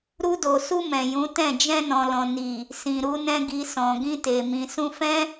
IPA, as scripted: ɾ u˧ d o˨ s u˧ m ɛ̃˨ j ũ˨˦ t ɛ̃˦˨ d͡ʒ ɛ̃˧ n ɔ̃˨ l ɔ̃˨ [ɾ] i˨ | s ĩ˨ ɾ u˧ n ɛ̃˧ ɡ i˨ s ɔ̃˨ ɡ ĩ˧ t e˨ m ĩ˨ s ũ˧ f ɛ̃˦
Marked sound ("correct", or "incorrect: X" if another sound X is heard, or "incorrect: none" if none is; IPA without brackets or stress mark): incorrect: n